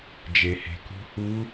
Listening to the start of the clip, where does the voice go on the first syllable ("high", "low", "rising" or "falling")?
low